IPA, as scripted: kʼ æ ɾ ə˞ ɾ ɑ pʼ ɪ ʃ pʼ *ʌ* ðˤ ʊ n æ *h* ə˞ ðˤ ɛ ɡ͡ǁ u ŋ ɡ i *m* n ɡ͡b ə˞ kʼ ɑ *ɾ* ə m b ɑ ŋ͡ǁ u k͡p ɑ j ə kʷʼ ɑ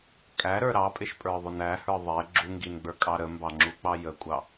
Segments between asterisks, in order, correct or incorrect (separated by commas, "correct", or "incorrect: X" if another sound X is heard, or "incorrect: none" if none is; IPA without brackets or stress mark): incorrect: ə˞, correct, incorrect: none, correct